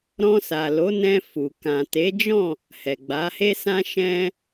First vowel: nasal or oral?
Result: nasal